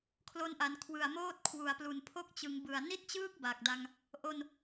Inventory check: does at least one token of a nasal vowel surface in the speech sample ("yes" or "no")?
no